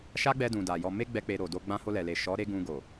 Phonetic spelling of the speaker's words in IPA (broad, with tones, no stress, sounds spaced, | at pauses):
ʃ a˦ ɡ͡b ɛ˧ d ũ˨ d a˨ j ɔ˧ m e˦ ɡ͡b ɛ˦ k͡p e˧ ɾ o˨ d o˧ ɡ͡b ã˧ h o˧ l ɛ˨ l e˨ ʃ ɔ˨˦ ɾ e˦ ɡ ũ˧ ɡ o˨